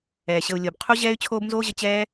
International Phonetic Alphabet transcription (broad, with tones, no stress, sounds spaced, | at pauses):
ɛː˩ ɕ ə˨ u̯ lʲ o˩ b qʰ u˦ ʑ ɛː˦ y̯ t͡ɕʰ oː˦ b n z oː˦ ʑ ə˨ t͡ɕ ɛː˦